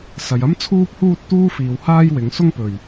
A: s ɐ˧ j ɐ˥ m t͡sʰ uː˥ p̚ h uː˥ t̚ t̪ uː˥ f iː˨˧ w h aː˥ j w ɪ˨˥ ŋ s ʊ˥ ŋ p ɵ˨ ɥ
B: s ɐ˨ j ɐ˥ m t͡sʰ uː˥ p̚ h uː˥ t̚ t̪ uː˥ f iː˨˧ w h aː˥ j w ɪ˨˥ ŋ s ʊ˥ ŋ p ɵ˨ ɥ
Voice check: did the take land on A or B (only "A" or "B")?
B